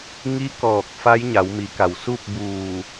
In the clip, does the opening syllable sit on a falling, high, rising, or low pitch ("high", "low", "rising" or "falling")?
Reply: rising